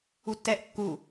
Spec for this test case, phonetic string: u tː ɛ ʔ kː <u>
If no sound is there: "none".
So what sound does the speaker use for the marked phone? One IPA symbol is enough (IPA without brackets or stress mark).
u